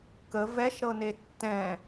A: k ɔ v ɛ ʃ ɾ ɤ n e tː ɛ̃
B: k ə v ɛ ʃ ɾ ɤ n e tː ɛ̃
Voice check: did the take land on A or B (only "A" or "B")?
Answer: B